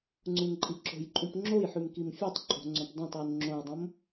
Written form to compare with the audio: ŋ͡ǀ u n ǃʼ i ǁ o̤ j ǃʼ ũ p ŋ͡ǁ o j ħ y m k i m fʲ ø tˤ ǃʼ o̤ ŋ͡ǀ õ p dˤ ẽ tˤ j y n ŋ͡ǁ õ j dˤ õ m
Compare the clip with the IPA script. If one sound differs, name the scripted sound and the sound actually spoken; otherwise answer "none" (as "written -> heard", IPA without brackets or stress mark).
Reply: none